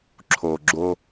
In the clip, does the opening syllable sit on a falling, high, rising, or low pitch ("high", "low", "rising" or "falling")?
low